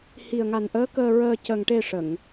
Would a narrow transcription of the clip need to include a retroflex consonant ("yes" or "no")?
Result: yes